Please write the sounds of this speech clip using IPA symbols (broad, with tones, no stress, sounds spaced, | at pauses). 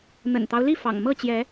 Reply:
n̪ ə̰˨˩ n t̪ ɑ˦ ʊ̯ l i˥˨ f ɑ̰˨˩ ŋ m ɤ˥˨ t͡ɕ j ɛ˨˦